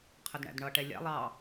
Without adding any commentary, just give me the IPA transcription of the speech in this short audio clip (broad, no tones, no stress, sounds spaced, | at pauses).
qʰ ə d ɳ æ̰ d ɳ ʌ ʈ ɛ lʲ æ̰ lˠ ɑ